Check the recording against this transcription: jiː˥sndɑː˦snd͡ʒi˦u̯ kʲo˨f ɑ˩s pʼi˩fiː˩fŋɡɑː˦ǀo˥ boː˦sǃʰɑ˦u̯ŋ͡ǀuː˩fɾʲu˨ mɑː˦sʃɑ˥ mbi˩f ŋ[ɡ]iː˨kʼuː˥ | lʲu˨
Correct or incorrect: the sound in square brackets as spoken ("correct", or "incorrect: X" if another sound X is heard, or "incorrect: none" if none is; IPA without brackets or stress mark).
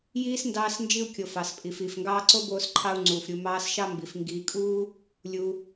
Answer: correct